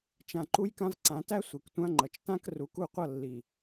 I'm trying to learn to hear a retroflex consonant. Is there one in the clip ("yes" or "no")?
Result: no